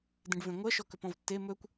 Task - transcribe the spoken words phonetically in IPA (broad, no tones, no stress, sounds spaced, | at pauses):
d ẽ ɖ v ẽ ŋʷ ɜ ʃ ɔ k ɵ p ɔ̃ v tː e m ɵ kʷ